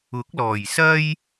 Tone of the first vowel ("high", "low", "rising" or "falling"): rising